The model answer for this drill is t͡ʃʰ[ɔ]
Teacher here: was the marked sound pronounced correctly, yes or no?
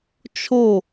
no